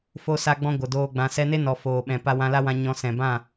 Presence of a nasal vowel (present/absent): present